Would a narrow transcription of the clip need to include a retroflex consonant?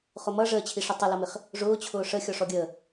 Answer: yes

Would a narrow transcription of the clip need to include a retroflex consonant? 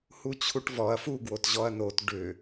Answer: yes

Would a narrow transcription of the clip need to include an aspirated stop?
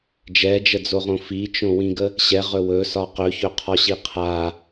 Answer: yes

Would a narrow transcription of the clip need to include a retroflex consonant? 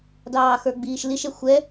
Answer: no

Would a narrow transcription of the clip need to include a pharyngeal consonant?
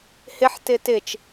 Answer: yes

